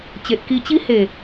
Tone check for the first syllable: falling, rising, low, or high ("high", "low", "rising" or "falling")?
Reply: low